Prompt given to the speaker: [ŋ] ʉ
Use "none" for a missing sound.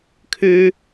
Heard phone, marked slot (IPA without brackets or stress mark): kʰ